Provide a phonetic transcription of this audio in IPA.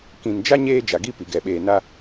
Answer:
k ĩ˨ n d͡ʒ a˦ ɲ eː˦ d͡ʒ a˨ ɡ i˦ p i˨ ɡ ɛ˨ ɓ eː˨ n a˦

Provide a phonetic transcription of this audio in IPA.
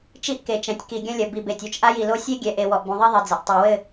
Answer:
t͡ʃ i˦ ʔ k e˨ t͡ʃ ɛ̃˨ tʲ k i˨ ɡʲ ɐ̃˦ lʲ ɐ˨ b i˨ b e˨ tʲ o˦ t͡ʃ ʔ a˦ j i˨ l o˦ sʲ e˦ ɡʲ ɛ˨ ʔ e˨ w ɔ˨ ʔ b ũ˨ ðˤ i˦ ðˤ i˨ d͡z ɐ˨ ʔ tˤ i˨ w ɘ˦˨

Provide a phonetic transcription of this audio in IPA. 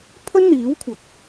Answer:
pʰ ɵ˥ n n̪ iː˨˥ w kʷʰ ɐ˨ k̚

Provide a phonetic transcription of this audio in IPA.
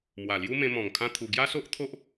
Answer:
m w a˨˩ l j u˦ m ẽ˧ m ɔ̃˨˩ ŋ kʰ ã˦ t̪ʰ u˧ ɡ j a˦ s o˦ ʔ t̪ʰ o˦ ʔ

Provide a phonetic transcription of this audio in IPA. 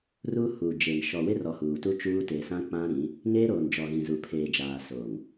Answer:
r uː˦ h uː˨ d͡ʒ e˨ m ʃ ɔ˨ w ɪ˦ r ɔ˨ h uː˨ t u˦ t͡ʃ uː˦ t e˨ s ã˦ k͡p ã˦ ɾ ĩ˨˦ | ŋ eː˦ ɾ oː˨ n d͡ʒ ɔ˨ ɣ ĩ˨ z u˨ pʰ eː˨ d͡ʒ aː˨ s oː˨ ŋ

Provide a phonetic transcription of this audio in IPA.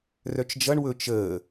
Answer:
r œ t͡ʃ d͡ʒ ʌ ɳ w ɵ t͡ʃ əː

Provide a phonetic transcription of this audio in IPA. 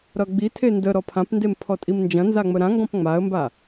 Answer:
ɾ ʌ ɡ͡b i tʰ e n d ə ɾ ɔ pʰ ã p n d e m pʰ ɔ tʼ i m n d͡ʒ ɐ̃ n z a ŋ͡m ə ɾ ã ŋ ɡ ɔ̃ p ŋ͡m a ə̯ m b a

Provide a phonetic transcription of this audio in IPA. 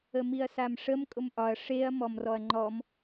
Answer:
ə m i ɐ̯ s a m ʂ ə m kʼ ʊ m ʔ ɒ ɐ̯ ʂ e ɐ̯ m ɔ m r ɔ ɐ̯ ŋ͡ǃ ɔ m

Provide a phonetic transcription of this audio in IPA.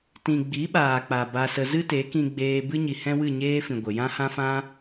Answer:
t ĩ˨ ɡ͡b i˨˦ ɓ aː˨ k͡p a˨ b a˧ s ə˧ z ɨ˦ t e˨˦ k ĩ˧ ɡ͡b eː˧ b ɨ˦ ɲ i˨ h ɛ̃˦ w ɨ˦˨ ɲ eː˦ f ĩ˨ ɡʷ ə˨ j ã˦ h ã˦ f ã˦

